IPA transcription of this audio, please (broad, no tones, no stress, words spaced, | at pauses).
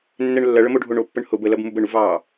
nːɛɳlːɐ ɭəmoɖʱoɳo pːəɳhʊb əlɐb mubəɳuvɑː